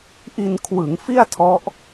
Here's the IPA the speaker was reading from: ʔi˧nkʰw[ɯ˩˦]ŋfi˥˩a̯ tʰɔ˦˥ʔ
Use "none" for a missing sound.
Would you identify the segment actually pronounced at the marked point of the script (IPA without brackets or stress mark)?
ɯ˩˦